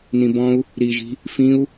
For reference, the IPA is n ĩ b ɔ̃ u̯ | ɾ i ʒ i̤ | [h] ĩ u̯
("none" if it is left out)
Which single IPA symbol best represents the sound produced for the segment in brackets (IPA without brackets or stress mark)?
f